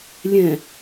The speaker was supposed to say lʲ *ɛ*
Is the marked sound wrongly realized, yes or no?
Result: yes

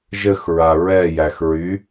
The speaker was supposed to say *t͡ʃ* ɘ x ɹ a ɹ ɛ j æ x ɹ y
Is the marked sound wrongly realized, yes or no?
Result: yes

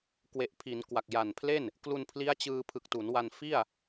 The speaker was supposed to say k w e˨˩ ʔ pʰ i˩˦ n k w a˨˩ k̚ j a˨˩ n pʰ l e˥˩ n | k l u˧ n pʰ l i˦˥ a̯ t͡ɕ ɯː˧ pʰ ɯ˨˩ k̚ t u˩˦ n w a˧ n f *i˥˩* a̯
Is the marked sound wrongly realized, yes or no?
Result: no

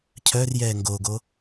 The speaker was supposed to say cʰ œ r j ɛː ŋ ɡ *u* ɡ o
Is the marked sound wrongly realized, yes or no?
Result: yes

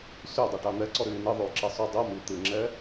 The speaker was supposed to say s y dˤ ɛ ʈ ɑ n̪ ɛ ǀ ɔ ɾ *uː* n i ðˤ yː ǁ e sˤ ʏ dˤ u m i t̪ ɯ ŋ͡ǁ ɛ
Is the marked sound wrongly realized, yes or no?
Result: yes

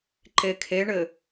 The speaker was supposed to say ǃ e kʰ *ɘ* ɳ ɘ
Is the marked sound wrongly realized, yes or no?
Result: yes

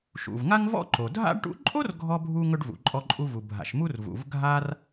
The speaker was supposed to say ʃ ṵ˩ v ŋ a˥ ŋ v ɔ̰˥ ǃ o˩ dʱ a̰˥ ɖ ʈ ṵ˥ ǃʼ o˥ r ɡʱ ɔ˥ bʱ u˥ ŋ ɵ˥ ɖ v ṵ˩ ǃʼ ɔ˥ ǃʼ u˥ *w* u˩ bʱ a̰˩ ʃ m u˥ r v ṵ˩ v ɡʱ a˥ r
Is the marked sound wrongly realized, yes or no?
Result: yes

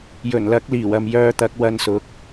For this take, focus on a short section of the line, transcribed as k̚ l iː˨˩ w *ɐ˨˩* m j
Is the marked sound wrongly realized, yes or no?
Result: yes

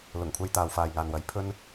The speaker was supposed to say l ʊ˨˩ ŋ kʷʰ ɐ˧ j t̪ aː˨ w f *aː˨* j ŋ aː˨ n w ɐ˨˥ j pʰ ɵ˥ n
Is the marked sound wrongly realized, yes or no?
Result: no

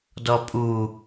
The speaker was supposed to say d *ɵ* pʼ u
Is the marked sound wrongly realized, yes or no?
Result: yes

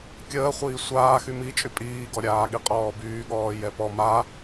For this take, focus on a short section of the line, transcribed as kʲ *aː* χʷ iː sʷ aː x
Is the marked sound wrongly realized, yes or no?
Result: yes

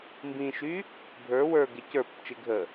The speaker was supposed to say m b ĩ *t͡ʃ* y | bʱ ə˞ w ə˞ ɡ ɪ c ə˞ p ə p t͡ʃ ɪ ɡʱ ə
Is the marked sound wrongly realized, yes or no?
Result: yes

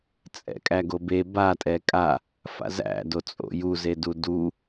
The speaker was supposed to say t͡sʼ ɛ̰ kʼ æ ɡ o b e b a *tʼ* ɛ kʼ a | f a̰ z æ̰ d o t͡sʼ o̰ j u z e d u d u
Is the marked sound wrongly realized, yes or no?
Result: no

